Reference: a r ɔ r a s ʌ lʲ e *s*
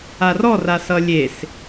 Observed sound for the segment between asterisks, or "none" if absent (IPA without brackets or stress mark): s